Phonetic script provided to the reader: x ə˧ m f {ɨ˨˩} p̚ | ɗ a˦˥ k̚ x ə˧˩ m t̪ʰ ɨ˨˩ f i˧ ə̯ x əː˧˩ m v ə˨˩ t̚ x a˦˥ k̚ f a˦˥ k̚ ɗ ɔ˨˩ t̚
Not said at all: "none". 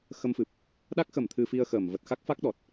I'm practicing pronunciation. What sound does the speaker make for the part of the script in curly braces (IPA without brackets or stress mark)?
ɨ˨˩